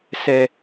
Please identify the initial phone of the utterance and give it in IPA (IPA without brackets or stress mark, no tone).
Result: s